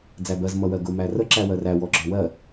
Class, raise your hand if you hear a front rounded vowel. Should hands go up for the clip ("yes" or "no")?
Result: no